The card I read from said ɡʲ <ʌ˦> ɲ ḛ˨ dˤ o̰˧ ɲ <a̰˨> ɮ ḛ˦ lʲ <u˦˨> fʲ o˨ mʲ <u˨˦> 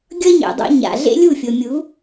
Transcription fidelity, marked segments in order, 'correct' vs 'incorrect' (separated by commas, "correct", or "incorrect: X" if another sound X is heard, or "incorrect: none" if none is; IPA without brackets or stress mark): correct, correct, correct, correct